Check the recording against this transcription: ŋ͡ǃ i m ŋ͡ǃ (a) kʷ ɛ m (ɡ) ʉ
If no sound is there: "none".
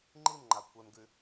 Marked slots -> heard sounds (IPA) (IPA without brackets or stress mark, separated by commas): a, ɡ